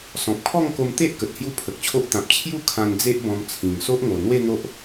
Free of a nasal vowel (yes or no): no